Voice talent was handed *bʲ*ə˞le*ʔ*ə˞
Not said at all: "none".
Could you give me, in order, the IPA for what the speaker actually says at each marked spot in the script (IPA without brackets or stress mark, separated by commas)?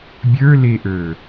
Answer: bʲ, ʔ